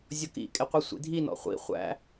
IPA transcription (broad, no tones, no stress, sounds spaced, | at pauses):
zʲ ɔ k ḭ kʼ ɪ qʷ i sʷ ḭ dʱ i n ɔ̰ χʷ ḭ χʷ æ̰